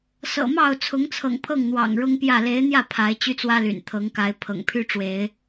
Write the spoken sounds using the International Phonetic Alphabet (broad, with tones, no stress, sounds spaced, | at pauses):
s ɤ̰˨˩ m ɑ˥˨ ʊ̯ t͡sʰ ʊ˨˦ ŋ t͡sʰ ɤ̰˨˩ ŋ pʰ ɤ˥˨ ŋ n̪ w ɑ̰˨˩ ŋ ɻ ʊ˦ ŋ p j ä˥˨ l e˨˦ ɪ̯ n̪ j ä˥˨ pʰ a˨˦ ɪ̯ t͡ɕ y˦ t͡s w ä˦ l y̰˨˩ n t̪ʰ ɤ˨˦ ŋ k a˨˦ ɪ̯ pʰ ɤ̰˨˩ ŋ pʰ y˦ ʈ͡ʂ w e˨˦ ɪ̯